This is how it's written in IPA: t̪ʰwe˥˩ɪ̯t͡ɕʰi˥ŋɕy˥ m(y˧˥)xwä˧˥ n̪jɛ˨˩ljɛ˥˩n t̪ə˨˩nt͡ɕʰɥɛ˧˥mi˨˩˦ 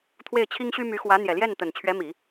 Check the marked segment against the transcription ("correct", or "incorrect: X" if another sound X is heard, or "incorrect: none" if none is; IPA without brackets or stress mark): correct